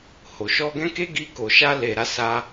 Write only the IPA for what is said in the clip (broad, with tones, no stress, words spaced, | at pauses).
ho˨ʃɔ˧ɡɛ̃˦ ke˦ɡi˧ ko˨ʃa˧le˨ ɾa˧sa˧